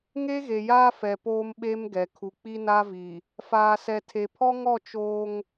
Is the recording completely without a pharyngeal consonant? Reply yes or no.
yes